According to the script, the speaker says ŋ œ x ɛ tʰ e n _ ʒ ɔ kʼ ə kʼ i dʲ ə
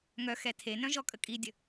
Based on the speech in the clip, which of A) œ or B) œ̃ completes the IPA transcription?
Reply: B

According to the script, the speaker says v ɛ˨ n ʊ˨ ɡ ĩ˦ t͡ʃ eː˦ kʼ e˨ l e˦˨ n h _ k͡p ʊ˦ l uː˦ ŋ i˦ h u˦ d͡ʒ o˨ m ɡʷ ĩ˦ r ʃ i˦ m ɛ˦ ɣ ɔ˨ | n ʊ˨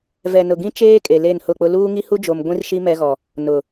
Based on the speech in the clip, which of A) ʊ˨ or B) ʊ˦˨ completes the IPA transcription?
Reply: B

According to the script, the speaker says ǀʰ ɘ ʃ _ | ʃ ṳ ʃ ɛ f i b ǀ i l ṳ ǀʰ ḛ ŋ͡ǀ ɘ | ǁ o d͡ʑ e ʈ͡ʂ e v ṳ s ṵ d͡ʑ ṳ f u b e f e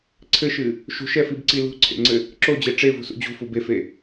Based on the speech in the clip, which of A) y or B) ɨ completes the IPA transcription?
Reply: B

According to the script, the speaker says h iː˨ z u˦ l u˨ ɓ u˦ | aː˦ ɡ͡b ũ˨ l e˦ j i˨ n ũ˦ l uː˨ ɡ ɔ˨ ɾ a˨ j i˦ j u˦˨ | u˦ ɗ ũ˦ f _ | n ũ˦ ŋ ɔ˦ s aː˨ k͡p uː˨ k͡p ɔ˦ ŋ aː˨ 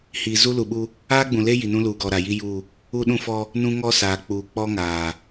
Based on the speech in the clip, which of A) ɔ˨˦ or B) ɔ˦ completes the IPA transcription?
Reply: B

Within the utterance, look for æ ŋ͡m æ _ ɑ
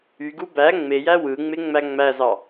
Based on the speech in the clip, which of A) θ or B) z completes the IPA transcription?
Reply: B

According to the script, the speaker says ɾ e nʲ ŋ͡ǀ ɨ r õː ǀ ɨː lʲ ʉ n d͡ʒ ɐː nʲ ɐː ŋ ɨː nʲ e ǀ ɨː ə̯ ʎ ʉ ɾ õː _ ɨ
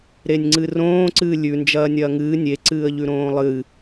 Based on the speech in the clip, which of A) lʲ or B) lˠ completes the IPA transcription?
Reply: B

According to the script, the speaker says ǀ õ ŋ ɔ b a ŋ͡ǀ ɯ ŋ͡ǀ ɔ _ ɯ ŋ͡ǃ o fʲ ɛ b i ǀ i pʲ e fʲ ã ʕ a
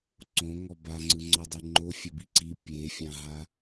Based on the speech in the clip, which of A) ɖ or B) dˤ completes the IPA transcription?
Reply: B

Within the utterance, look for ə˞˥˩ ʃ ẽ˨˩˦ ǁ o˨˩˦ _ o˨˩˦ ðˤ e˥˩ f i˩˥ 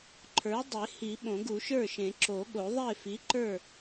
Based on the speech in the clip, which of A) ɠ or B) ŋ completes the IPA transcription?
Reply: A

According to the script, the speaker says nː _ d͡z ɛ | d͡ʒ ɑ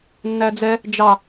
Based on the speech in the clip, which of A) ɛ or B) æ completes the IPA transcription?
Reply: B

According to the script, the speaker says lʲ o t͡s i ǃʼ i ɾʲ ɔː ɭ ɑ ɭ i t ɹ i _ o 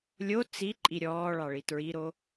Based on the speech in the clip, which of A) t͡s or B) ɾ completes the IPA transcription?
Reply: B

